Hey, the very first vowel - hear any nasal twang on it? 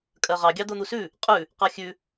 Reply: no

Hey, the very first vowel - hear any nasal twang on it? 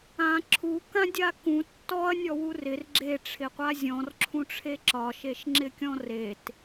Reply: yes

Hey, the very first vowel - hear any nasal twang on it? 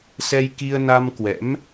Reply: no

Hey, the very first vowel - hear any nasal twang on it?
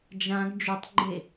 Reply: yes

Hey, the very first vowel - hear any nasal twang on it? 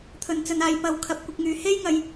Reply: no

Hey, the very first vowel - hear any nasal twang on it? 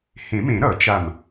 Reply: yes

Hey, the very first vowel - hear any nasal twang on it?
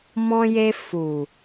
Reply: yes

